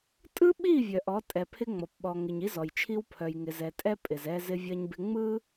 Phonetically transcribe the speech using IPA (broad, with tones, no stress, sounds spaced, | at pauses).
tʼ ɯ˦ ɓ i˦˨ vʲ œ˨ ʔ ɔ˨˦ tʼ ɛ˨ pʰ ɪ˦ ŋ͡m ɔ˨ p ɓ ɔ˨ ŋ ɪ˨ ɲ i˦ z ɔ˨ j t͡ʃʰ i˦ w pʰ œ˨ j ŋ ɪ˨ z ɛ˨ tʼ ɛ˦ pʼ ɪ˨ z ɛ˦ z ɪ˦ vʲ ɐ˦ ɲ b ɪ˦ ŋ͡m ɯ˦